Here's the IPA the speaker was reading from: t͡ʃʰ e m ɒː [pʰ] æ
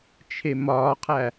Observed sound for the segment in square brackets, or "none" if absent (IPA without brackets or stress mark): qʰ